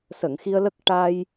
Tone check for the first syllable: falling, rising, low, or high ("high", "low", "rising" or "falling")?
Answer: low